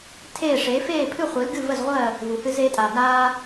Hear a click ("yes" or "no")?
no